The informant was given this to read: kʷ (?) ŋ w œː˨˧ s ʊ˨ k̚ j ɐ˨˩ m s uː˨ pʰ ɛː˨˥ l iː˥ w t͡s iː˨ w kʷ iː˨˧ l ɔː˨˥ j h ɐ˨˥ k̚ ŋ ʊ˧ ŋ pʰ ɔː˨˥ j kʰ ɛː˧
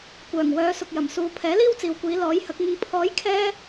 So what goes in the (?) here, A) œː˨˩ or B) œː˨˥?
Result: A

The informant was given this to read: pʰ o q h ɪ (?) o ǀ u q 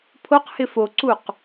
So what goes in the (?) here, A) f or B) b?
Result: A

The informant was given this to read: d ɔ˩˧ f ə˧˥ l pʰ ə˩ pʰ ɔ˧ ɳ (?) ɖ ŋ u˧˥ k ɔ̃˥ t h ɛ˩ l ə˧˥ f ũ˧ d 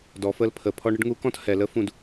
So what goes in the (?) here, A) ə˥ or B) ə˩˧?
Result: A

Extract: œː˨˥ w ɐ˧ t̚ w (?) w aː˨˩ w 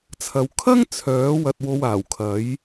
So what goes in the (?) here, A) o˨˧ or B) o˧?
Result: B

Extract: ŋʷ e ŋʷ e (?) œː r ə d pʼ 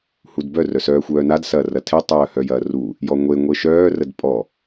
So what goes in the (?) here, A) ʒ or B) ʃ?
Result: B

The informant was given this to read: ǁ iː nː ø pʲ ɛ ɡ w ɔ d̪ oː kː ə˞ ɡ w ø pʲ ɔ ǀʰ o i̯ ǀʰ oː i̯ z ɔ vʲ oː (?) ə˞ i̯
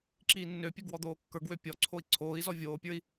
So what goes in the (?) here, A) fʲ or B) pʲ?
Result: B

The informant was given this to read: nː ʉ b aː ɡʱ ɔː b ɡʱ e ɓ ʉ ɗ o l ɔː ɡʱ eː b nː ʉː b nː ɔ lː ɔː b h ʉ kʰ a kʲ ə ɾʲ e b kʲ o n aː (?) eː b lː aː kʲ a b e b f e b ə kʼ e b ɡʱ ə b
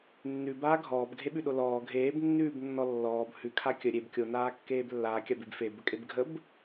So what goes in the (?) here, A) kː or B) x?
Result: A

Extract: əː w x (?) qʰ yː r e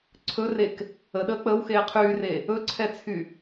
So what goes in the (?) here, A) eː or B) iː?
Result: A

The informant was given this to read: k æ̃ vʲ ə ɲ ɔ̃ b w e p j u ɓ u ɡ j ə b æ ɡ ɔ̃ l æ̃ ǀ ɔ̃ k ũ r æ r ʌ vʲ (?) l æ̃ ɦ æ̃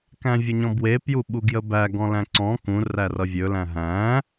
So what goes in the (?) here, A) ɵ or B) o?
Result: A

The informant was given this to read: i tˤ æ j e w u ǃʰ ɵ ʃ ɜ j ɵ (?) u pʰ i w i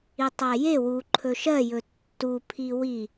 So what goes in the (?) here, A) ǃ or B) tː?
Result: B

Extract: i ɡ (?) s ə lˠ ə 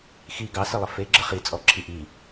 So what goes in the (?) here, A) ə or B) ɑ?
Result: B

